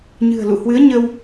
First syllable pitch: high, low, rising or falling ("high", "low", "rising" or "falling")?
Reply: low